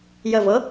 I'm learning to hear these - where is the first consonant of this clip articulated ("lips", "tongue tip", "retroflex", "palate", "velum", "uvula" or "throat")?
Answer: palate